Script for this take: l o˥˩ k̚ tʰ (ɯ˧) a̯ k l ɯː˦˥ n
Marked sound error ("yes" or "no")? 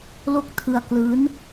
no